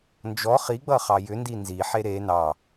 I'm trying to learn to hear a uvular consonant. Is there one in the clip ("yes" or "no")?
yes